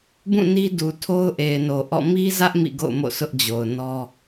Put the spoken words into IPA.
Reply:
b ũ˦˨ n i˦ d u˨ tʰ o˦ ʊ̯ ʔ e˨ ɪ̯ n o˨ ʔ ɔ̰˦˨ m i˦ z ä˦ ʔ m ḭ˦˨ ɡ o̰˦˨ ʊ̯ m o̰˦˨ s ʊ˦ ʔ d͡ʑ o˨ ʊ̯ n ɔ˦

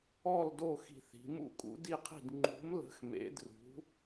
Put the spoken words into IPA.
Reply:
ɔ˥˧ l d o˥˧ x i̤˥˧ θ i̤˧˥ m ṵ˥˧ kʼ ṵ˧˥ d i˥˧ qʰ i̤˥˧ d ŋ͡ǃ ṳ˧˥ m l ə̤˧˥ x m ḛ˧˥ d r ṳ˧˥

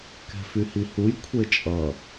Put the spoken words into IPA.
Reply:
k ɛ̤ f y h i h u j kʷʰ e t͡ʃʼ ʌ

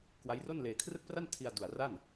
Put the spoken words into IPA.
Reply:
k w a˦˥ j r o˥˩ n l eː˧ kʰ r ɯ˥˩ k̚ p r a˥˩ n tʰ i˧ a̯ d u˨˩ a̯ r a˥˩ n

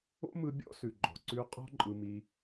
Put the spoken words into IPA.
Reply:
o̰˦ m ɯ˧ bʲ ɔ̰˦ s ʉ˨ ɡ͡ǃ ɔ̤˨ ǀ ʉ˦ qʼ ɔ̤˦ ǃʼ ɯ˧ m i˧

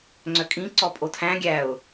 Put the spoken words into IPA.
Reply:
ŋ͡ǀ œ kʼ ĩ ǀ ɔ pʼ o tʰ æ̃ ɡʲ æ ʊ̯

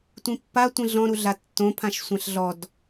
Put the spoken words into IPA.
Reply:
tʷ ĩ pː a tʷ ĩ ɮ ɔ̃ ɾ u ɮ a tː õ pʰ ã ʃ sʷ ã ɬ ɮ ɔ d

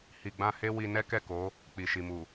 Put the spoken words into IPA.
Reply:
h i˨ ɡ͡b ã˧ h e˦ w i˧ n ɛ˦ k ɛ˦˨ k o˨˦ | k͡p i˨ ʃ i˨ m u˨

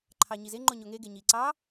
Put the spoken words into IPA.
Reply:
ǃʰ ɑ ɲ i z e ŋ͡ǃ o ɲ o ŋ e ɡ e ɲ i ǀ ɑ

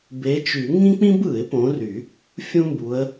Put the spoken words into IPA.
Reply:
b e˨˦ t͡ʃ y˨˩˦ ŋ ĩ˥ k͡p ĩ˥ b ɯ˨˩˦ ɪ̯ p õ˨˦ r y˨˩˦ | fʲ ũ˥ m b u˨˦ ə̯

